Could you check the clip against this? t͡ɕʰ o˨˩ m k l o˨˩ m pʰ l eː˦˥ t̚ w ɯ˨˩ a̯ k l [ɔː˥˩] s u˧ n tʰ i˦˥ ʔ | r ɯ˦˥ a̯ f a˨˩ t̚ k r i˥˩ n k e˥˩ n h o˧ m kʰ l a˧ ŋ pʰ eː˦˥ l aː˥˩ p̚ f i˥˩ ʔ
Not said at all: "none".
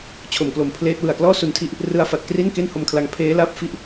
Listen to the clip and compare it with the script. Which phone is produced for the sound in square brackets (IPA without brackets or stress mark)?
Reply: ɔː˥˩